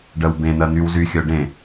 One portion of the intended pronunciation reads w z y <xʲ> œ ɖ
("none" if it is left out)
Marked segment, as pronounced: xʲ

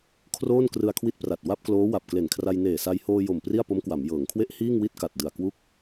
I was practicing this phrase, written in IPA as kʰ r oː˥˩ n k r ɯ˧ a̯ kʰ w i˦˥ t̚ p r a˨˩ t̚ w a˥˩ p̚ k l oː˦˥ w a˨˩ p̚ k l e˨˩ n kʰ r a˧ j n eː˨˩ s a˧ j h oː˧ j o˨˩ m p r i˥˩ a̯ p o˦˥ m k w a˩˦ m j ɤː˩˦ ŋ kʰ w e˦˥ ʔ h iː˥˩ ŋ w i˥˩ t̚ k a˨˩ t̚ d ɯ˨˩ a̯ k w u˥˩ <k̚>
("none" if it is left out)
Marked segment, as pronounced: k̚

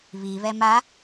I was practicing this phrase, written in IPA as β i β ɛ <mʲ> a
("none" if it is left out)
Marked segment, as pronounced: m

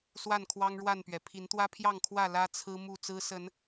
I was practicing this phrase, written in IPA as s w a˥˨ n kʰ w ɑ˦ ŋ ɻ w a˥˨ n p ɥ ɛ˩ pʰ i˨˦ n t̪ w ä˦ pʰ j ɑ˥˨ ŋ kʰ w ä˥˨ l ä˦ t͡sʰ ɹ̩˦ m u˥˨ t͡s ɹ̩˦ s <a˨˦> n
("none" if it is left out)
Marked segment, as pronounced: ə˨˦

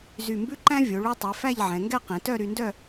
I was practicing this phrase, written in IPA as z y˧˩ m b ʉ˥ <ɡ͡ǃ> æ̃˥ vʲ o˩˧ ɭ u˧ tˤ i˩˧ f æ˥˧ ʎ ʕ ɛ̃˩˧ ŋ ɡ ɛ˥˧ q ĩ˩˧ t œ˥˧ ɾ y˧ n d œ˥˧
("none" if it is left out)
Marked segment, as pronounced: ǃ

